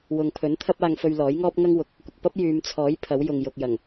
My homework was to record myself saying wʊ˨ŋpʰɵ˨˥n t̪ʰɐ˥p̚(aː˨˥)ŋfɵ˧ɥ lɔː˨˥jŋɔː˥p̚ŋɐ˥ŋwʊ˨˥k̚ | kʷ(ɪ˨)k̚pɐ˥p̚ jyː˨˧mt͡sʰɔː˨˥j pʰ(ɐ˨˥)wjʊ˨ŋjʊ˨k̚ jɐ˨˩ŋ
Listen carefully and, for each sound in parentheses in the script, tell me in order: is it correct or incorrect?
incorrect: aː˧, correct, correct

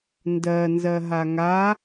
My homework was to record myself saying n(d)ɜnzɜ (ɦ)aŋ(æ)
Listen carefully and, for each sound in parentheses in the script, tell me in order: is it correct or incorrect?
correct, correct, incorrect: a

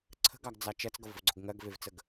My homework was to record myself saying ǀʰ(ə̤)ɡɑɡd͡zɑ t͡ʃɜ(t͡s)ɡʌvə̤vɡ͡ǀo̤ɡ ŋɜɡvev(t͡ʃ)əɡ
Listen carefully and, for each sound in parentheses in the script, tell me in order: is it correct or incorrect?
correct, correct, incorrect: t͡s

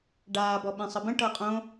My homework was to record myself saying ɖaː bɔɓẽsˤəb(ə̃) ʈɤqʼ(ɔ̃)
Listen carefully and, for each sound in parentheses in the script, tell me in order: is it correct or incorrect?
correct, incorrect: õ

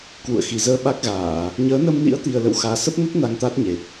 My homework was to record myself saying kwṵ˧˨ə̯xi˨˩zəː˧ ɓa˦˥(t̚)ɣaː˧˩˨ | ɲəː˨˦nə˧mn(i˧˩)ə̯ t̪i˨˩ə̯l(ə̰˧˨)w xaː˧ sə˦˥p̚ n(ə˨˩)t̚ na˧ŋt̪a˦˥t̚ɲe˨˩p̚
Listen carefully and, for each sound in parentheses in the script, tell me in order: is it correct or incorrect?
incorrect: k̚, incorrect: ḭ˧˥, correct, incorrect: ə˦˥

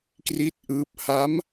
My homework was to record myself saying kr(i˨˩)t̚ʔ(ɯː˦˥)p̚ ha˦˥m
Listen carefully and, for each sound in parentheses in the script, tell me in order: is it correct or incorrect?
incorrect: i˦˥, correct

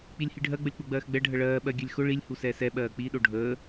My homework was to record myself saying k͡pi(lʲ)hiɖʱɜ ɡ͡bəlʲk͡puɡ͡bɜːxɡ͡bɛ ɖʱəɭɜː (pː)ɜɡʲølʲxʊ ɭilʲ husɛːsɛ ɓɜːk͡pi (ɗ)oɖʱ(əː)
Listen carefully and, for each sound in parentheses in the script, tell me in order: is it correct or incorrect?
correct, incorrect: ɓ, correct, correct

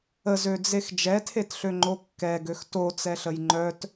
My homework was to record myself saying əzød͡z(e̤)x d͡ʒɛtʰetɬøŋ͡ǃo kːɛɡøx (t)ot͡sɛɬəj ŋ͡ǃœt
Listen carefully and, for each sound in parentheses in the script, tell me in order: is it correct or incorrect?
incorrect: e, correct

